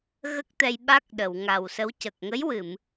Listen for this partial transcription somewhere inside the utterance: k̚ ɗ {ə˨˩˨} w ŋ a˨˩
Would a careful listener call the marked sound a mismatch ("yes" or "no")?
no